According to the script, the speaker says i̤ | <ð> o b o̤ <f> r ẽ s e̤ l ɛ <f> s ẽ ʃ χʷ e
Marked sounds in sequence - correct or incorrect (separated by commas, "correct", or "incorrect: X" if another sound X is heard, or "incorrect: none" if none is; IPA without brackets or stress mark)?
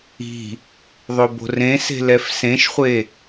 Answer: incorrect: ðˤ, incorrect: none, correct